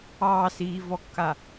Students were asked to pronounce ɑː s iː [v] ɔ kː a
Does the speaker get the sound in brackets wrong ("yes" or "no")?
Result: no